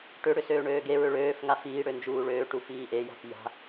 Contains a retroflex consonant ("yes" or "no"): yes